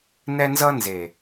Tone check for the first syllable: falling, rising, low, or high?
high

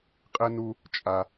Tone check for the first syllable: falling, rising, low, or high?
high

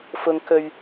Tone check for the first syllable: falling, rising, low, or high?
low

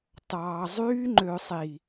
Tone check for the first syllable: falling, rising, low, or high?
low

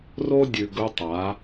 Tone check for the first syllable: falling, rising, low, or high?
high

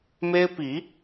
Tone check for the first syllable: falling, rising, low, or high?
high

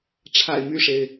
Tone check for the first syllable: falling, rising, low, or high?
low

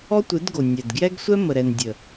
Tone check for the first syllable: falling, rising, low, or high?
high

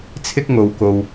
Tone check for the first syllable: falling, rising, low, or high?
high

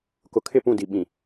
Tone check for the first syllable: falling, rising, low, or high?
low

